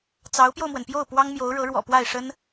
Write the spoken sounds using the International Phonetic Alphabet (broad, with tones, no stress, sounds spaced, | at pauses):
t͡s ɑ˧˥ ʊ̯ p j o˧ ʊ̯ m w ə˩ n p j o˥˩ ʊ̯ p w ɑ˥ ŋ m j o˧˥ ʊ̯ ɻ ɤ˧˥ ɻ w ɔ̰˨˩ p w a˥˩ ɪ̯ ʂ ə˥ n